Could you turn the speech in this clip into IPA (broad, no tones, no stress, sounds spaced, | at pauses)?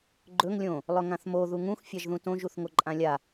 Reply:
ɡ͡ǃ ɵ ŋ lʲ õ | lˠ ɵ ŋ ã θ m o ð u ŋ ũ x fʲ a ʒ ð ũ t õ ʒ u θ ŋ o ǃʼ ã lʲ a